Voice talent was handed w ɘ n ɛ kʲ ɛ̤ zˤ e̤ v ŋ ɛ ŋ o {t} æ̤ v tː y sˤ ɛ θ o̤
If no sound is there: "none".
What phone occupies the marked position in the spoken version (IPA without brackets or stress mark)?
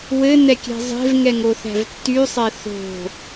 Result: θ